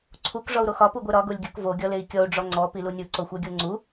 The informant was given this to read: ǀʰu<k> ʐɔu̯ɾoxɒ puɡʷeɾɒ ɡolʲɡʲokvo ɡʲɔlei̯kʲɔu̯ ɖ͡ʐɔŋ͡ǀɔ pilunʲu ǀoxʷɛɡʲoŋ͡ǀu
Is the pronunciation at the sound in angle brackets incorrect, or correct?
correct